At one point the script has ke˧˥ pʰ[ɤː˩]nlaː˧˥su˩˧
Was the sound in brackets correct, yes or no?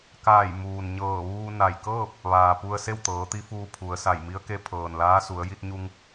yes